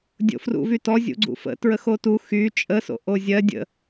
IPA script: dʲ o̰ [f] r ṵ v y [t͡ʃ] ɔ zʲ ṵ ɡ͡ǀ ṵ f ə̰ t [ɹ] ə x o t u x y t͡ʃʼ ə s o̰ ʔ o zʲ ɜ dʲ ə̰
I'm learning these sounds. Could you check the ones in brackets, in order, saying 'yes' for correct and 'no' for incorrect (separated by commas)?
yes, no, yes